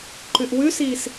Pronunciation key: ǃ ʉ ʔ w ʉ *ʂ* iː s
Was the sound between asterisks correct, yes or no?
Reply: no